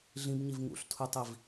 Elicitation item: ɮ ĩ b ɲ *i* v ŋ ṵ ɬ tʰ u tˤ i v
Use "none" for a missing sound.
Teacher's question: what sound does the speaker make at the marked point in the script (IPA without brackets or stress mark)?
i